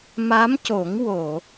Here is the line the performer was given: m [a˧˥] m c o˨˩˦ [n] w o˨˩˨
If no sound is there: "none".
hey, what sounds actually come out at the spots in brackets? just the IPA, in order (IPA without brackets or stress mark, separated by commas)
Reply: a˧˥, ŋ